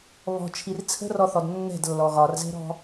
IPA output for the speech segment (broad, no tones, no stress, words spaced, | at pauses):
βɔ̤t͡ʃʰir t͡sʰə̤rɔθɔd nːɛ̤dlːɔ ɣɒrzɛ̤ɾɔ̤